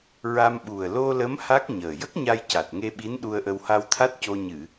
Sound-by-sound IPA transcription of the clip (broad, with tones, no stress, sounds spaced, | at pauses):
ɹ a˧ m ɓ u˨˩ ə̯ l o˧ l ə˧˥ m h a˦˥ k̚ ɲ əː˨˩ j ə˦˥ k̚ ɲ a˧ j c a˨˩ t̚ ŋ e˧ ɓ i˧˥ n ɗ u˧ ə̯ ʔ ə˧ w h a˧ w t̪ʰ a˦˥ t̚ c o˧ ɲ ɨ˨˩˨